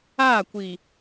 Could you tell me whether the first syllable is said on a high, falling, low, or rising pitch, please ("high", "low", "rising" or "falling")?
falling